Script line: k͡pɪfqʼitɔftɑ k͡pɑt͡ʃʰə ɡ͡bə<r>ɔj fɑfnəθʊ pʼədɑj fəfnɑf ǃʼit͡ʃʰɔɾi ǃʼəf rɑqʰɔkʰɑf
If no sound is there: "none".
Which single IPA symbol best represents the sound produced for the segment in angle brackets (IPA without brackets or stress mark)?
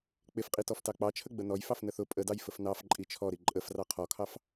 n